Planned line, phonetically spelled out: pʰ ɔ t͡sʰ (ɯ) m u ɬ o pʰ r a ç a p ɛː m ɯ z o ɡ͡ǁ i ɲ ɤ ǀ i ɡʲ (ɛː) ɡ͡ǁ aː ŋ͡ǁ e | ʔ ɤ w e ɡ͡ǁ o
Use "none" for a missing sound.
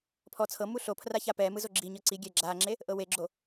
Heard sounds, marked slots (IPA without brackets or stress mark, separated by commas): ɤ, ɛ